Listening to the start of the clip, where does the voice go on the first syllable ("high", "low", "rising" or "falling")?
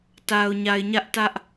low